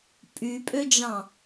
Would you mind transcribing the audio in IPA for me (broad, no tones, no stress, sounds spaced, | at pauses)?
pʼ y pʼ ø d͡ʒ ɑ̃